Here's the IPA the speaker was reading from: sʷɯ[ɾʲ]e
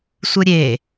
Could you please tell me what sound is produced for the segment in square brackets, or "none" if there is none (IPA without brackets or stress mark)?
ɾʲ